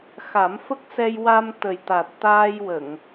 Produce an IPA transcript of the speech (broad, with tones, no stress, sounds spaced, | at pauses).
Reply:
x a˨˩˦ m f ə˦˥ k̚ s ɛ˧ j w a˧ m t̪ ə˨˩ j t̪ a˨˩ t̚ t̪ aː˧ j w ə˨˩˨ ŋ